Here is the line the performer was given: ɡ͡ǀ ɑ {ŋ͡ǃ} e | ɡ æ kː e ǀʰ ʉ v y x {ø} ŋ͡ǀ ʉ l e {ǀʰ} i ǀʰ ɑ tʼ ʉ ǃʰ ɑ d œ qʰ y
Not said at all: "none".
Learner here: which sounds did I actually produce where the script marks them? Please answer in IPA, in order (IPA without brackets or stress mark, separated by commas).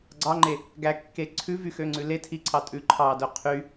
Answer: ŋ͡ǃ, ø, tʰ